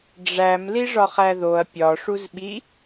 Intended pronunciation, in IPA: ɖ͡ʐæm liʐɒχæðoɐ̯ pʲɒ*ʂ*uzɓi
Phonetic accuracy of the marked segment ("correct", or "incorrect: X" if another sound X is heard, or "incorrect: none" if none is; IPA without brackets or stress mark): correct